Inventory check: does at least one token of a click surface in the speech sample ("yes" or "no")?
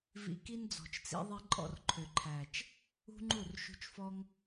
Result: yes